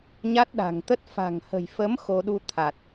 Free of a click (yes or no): yes